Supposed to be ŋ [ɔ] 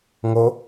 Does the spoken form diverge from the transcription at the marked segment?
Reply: yes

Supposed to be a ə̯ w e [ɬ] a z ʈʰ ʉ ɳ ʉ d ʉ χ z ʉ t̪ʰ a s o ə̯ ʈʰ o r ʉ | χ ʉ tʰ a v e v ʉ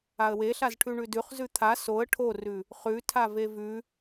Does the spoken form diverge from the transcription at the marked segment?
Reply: no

